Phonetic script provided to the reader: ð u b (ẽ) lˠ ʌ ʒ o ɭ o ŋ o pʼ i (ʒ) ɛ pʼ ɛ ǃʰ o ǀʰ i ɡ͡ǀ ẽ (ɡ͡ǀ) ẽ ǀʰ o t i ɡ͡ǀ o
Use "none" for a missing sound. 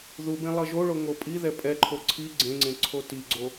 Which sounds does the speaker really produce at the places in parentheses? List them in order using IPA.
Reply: ẽ, ð, ŋ͡ǀ

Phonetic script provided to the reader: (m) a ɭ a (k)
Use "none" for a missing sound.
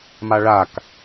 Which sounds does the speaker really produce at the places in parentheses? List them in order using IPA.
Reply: m, k

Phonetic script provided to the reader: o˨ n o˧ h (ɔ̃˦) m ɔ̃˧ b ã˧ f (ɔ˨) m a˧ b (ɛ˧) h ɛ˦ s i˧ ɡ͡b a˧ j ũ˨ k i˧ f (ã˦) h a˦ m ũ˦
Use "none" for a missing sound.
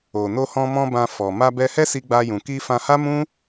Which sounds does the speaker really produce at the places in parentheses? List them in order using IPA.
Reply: ɔ̃˧, ɔ˨, ɛ˧, ã˧

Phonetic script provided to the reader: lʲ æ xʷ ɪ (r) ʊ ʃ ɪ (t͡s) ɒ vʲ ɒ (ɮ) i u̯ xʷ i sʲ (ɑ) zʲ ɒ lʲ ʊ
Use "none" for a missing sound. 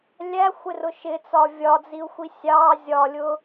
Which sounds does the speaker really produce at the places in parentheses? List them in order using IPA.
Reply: r, t͡s, d͡z, ɑ

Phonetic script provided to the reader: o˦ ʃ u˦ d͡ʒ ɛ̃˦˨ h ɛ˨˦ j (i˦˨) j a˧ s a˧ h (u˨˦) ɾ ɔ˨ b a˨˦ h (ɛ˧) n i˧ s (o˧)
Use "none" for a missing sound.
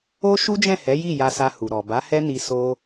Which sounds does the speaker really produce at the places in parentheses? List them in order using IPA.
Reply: i˦˨, u˨, ɛ˦, o˧

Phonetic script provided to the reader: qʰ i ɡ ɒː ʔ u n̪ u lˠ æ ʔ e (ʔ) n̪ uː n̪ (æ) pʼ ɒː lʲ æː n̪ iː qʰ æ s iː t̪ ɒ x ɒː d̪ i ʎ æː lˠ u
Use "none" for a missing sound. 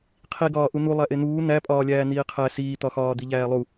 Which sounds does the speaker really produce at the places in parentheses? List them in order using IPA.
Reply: none, æ

